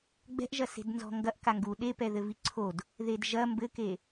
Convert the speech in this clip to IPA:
ɡ͡b ɛ̤ ʔ ʒ ɐ s e̤ d n z ɔ̤ ŋ ɡ ɐ ʔ k a ŋ ɡ u ɗ e p ɛ ð ɘ v i ǀʰ o d | ð e d ʒ ɐ m b ɘ k e

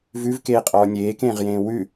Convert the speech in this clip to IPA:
v ʉ v k eː qʼ ɔː nʲ eː k ẽː ʁ j ẽː w ʉ

